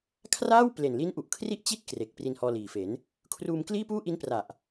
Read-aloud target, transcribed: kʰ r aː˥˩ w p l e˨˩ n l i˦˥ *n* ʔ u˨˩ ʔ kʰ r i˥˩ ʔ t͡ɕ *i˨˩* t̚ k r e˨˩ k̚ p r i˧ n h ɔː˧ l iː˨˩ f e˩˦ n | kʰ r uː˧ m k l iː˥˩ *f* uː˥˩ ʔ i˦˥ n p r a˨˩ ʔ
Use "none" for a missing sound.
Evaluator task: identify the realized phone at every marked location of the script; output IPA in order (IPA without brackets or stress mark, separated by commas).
n, i˥˩, p